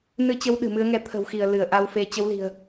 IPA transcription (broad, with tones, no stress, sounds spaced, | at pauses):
n ɨ˧ t͡ɕ ə˨˦ w ɗ ɨ̤˨˩ m ɨ˨˦ ə̯ ŋ ɛ˧ t̪ʰ ə̤˨˩ w x i˧˩ ə̯ l ɨ˧˩ ə̯ ʔ a˧ w f e˧ t͡ɕ ə˨˦ w l i̤˨˩ ə̯